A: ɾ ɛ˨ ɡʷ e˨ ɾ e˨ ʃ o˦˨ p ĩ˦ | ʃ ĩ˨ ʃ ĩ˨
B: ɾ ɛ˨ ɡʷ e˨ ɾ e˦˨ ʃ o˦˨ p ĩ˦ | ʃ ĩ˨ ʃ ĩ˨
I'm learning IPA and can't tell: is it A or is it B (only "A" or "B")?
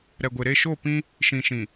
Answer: B